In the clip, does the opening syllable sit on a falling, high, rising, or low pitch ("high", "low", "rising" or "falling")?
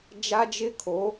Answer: high